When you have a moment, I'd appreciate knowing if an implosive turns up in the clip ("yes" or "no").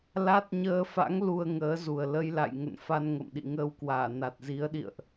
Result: yes